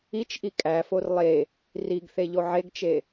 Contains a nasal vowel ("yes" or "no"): no